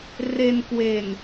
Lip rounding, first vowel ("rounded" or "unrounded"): unrounded